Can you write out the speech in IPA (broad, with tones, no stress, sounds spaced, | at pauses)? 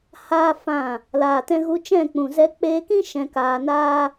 h aː˦ f ã˦˨ | l aː˨ t ɛ̃˧ ɣ u˧ t͡ʃ ɛ̃˦˨ k͡p ũ˨ z ɛ˧ k͡p eː˧ k ĩ˦ ʃ ɛ̃˧ k aː˧ n aː˦